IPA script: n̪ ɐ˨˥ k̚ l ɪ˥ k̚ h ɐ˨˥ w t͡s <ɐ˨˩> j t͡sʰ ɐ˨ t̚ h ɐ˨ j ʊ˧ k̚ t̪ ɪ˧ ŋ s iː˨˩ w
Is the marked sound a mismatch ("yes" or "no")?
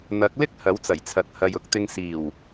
no